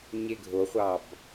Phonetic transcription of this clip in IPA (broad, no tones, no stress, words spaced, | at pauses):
ɲeɡʱoχʷɑb